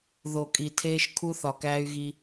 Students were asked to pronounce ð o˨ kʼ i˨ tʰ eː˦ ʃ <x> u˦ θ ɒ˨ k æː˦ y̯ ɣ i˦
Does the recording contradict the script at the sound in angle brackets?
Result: yes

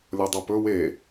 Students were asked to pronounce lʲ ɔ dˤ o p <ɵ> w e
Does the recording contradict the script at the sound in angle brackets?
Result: no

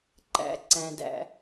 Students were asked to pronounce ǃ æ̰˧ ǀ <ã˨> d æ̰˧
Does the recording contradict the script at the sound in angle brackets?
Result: yes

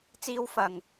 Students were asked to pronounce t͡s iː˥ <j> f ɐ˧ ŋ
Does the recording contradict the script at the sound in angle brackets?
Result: yes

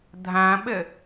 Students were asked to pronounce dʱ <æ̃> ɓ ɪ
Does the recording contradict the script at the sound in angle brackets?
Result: no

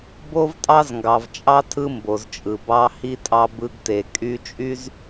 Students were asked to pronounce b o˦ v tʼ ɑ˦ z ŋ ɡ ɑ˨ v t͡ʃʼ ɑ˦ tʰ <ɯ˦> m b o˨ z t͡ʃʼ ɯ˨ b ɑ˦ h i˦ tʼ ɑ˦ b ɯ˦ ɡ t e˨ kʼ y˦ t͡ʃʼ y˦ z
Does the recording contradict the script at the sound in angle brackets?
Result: no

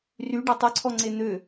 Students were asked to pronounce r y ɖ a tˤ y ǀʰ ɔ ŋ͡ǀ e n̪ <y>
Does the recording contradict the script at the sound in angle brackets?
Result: yes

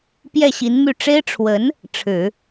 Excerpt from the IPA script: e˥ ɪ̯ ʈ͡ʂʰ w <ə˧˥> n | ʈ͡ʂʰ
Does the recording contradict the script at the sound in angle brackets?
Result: no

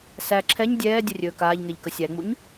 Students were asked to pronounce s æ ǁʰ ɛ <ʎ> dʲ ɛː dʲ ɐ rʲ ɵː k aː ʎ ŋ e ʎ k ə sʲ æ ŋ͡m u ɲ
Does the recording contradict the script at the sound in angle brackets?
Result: yes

